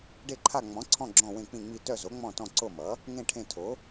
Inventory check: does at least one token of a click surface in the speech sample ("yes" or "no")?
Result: yes